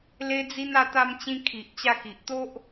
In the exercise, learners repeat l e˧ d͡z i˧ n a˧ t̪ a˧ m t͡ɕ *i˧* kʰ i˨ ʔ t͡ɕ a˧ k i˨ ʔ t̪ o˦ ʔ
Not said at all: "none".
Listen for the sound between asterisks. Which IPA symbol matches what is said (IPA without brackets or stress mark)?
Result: ĩ˧